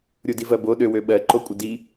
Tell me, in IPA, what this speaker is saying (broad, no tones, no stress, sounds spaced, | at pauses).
ɾʲ u d i v ɜ b o ɗ ø w ø ɓ ɜ ǃ o kʷʼ ə d i